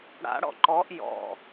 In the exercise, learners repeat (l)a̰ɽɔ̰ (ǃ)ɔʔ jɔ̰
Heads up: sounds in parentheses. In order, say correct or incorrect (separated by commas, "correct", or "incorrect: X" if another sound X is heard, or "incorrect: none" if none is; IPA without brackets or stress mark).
incorrect: ɽ, correct